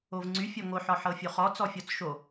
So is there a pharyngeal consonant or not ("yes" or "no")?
yes